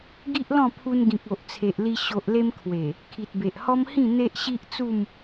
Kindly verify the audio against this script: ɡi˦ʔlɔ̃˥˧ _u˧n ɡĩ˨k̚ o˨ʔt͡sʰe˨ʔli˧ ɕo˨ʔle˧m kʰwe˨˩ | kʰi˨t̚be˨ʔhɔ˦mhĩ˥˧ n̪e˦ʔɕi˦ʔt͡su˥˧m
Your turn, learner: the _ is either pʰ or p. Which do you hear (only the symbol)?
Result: pʰ